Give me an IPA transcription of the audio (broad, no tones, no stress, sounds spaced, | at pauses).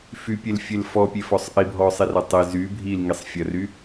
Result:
f y pʲ e l fʲ e l f ɔ pʲ e f ɔ sˤ ʔ i bʱ ɔ sˤ i r ɐ tˤ e z y bʱ i l ŋ i sˤ fʲ ɐ r y